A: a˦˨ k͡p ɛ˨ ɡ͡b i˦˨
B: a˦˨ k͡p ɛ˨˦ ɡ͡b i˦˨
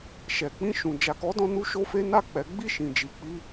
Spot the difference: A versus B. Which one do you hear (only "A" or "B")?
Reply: B